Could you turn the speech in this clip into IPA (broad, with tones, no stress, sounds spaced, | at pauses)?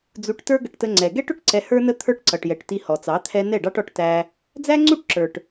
d͡z u˧ ʈ t ə˞˦ ɡ ə˧ ʈ t ə˧ ŋ͡ǀ ɛ˨ ɡ ɛ˦ ʈ ʊ˧ ʈ ǀ ɛ˧ h ə˞˦ n ə˦ t̪ʰ ə˞˦ ʈ ǀ ʌ˨ ʈ j ɛ˨ ʈ t i˧ h ɔ˨ t͡s ɑ˨˦ t̪ʰ ɛ˦ n ɛ˦˨ ɖ ɑ˦ ʈ ɔ˧ ʈ t æ˦ | d͡z æ˦ ŋ͡ǀ u˦ ʈ ǁ ə˞˨ ʈ